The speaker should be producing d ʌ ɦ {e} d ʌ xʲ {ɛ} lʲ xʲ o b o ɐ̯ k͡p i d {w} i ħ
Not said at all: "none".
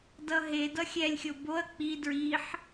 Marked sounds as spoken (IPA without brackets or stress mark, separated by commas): e, ɛ, ɹ